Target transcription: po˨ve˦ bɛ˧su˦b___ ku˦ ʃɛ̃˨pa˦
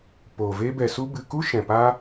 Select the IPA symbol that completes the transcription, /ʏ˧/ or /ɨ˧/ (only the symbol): ɨ˧